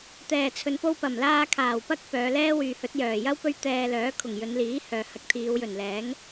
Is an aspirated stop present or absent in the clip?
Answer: present